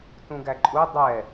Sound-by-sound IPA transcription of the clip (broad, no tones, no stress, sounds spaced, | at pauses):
t ũ ɡ æ ǃʼ u dˤ ɛ